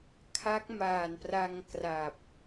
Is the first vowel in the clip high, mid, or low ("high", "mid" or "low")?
low